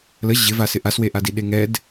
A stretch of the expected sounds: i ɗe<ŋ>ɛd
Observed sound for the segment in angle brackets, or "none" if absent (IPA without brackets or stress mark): ŋ